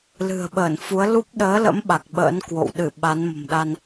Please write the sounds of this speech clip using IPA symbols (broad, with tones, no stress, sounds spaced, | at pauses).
l ɨ̤˨˩ ə̯ ɓ əː˧˩ n f u˨˦ ə̯ l u˦˥ p̚ ɗ əː˨˦ l ə̰˧˥ m ɓ a˨˩ k̚ ɓ ə̰ː˧˥ n k w o̰˧˨ w ɗ ɨ˧˩ ɓ a˨˦ n m ə̤˨˩ m ɗ a˧ n